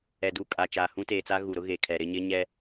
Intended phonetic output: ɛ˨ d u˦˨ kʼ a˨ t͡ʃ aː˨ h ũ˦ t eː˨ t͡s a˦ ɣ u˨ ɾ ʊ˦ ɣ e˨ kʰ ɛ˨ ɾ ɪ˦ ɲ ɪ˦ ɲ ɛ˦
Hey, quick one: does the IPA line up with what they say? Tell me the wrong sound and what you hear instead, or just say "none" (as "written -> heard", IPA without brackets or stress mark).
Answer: none